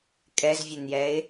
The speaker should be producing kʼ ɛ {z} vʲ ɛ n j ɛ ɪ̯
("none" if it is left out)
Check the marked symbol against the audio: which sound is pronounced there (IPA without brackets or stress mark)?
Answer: z